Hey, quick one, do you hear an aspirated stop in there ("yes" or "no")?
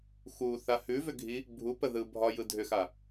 no